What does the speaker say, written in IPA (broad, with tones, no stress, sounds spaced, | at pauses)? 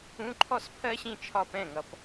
ũ˧˥˧ ǃʰ ɔ˥˧ s pʰ ɜ˥ ɕ ĩ˥˧ t͡ʃʰ ɒ˥˩ p ɛ̃˥˩ ŋ ʌ˨ p